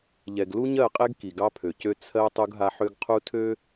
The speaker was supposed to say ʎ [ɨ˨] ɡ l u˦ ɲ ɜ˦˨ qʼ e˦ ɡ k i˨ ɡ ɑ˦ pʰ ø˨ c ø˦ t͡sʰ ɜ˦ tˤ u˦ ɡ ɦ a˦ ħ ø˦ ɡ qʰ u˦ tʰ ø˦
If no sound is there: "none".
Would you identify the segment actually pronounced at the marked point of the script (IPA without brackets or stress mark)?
ɛ˨